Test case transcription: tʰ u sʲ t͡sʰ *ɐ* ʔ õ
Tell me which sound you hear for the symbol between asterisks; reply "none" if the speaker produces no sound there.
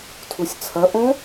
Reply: ɐ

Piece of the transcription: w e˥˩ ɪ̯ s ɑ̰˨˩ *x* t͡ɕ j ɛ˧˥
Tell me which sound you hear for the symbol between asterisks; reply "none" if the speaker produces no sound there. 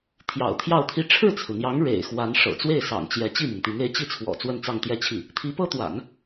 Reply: ŋ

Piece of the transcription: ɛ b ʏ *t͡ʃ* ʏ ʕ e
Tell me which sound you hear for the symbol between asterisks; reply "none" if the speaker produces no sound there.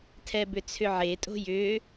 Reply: t͡sʰ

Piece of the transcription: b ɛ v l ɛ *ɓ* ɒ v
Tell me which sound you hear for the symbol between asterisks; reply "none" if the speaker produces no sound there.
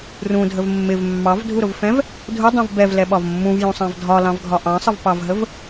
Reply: ɓ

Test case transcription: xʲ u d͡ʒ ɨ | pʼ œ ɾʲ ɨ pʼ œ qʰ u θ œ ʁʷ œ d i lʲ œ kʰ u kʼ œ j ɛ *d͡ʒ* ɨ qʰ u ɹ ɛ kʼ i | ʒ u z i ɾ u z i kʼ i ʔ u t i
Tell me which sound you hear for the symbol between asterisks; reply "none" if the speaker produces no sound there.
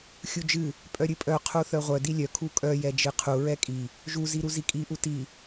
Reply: d͡ʒ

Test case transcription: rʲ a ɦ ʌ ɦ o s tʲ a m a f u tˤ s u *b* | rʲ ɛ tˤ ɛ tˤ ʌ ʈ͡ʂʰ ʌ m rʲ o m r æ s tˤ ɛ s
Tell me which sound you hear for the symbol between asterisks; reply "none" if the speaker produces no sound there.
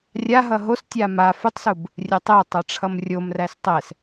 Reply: b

